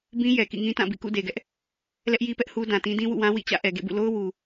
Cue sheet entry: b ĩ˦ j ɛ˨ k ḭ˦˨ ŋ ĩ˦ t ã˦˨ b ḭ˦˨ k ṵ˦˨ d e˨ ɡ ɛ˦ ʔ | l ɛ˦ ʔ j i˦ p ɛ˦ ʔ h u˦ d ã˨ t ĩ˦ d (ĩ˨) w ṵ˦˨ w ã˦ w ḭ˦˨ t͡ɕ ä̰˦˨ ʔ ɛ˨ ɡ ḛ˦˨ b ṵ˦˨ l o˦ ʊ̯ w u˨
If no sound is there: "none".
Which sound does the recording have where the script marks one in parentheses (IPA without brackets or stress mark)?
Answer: ĩ˦